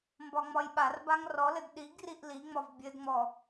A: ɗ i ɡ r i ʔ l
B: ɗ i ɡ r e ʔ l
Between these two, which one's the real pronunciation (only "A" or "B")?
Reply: A